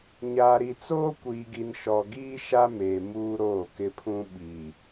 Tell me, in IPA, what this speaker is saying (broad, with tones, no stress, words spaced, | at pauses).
ɲaː˨ɾi˨t͡soː˦ kʷiː˨ɡi˨nʃɔ˨ ɡiː˦ ʃa˦meː˨ muː˦ɾoː˦˨kɪ˦pʰũ˦ ɓi˨